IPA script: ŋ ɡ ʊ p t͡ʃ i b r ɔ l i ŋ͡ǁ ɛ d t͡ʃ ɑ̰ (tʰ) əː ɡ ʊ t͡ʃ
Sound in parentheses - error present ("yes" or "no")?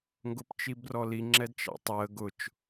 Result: yes